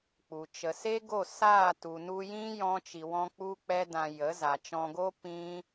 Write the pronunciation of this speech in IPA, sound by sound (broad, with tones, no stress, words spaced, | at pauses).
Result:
k͡pu˨ t͡ʃə˨se˦ɡo˦˨ saː˦˨tu˨nu˧jĩ˦ jɔ̃˦t͡ʃi˧wɔ̃˦ k͡pu˦k͡pɛ˦dã˧ jə˨˦za˨t͡ʃɔ̃˧ɡo˦ pĩ˦